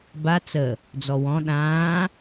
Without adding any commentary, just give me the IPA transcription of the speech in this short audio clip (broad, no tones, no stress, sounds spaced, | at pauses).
b a t͡s ə | d͡z ɔ w ɔ̃ ɗ ãː